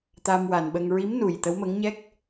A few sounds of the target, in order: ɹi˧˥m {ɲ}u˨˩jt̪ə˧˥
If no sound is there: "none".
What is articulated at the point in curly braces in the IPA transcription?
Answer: n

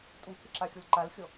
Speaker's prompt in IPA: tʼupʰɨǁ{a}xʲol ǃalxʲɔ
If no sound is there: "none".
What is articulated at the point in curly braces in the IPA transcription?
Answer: a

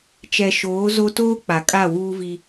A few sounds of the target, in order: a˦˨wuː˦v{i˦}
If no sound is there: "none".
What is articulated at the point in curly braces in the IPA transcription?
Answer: i˦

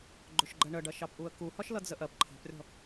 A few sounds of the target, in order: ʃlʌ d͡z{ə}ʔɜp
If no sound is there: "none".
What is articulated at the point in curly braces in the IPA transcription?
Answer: ə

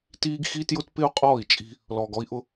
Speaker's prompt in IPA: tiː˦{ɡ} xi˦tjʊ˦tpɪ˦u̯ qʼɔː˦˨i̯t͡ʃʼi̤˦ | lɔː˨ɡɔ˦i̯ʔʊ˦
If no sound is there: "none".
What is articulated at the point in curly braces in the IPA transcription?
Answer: ɡ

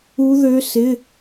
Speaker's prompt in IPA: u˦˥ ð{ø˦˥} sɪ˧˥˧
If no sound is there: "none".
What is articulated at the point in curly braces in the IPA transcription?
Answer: ø˦˥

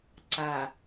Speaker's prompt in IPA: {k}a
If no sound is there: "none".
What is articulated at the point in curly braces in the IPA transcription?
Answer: ǀ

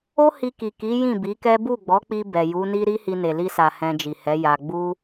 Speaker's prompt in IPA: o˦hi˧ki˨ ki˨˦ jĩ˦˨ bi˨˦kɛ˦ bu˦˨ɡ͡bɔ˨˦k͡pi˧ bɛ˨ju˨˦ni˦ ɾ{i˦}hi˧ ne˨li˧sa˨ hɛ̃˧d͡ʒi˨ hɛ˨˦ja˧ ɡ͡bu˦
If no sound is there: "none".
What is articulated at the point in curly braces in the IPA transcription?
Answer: i˦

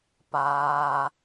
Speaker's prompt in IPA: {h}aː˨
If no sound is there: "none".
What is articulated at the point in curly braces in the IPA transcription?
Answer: p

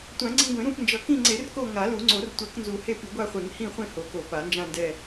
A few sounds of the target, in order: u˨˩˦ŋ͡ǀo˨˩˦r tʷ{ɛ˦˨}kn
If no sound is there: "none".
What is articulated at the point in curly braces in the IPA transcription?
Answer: ɛ˨˩˦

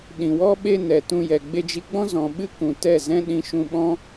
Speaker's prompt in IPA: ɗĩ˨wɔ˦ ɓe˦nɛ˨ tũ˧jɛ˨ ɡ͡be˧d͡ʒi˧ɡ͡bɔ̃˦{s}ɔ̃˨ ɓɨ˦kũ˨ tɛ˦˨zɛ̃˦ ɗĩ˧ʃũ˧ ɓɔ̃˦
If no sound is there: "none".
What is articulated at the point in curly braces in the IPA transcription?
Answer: z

